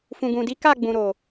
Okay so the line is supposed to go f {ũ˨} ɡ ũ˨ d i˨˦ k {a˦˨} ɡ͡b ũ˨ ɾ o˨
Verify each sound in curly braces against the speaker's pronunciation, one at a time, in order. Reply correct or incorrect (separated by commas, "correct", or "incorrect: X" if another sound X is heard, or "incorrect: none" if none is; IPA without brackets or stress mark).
correct, correct